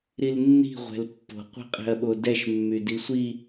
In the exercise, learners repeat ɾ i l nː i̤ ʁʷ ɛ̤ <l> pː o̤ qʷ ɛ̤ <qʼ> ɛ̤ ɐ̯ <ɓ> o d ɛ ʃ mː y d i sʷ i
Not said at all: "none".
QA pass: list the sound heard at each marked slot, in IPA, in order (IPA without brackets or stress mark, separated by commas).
l, qʼ, ɓ